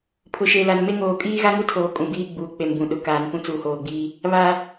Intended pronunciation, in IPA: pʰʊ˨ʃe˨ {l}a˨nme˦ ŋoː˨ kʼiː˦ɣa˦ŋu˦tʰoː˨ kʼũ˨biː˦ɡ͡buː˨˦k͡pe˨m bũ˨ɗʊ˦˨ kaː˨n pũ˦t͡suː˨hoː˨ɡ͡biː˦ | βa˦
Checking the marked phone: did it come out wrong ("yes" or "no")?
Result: no